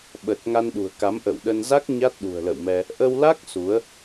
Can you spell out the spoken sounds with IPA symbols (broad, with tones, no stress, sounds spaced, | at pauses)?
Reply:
ɓ ə˨˩ t̚ ŋ a˧ n ɗ ṳ˨˩ ə̯ k a˨˦ m ʔ ə̰ː˧˨ w ɗ ə˧ n z a˦˥ k̚ ɲ a˦˥ t̚ ɗ ṳ˨˩ ə̯ l ə̰˧˨ w m ɛ˧ | ʔ ə˧ w l a˦˥ k̚ s u˨˦ ə̯